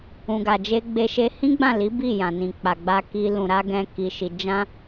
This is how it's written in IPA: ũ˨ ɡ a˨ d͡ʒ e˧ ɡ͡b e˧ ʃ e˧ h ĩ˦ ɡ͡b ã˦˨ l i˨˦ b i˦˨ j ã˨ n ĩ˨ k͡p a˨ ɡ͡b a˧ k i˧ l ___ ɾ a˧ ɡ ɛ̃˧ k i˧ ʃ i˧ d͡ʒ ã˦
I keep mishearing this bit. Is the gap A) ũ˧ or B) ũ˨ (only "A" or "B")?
B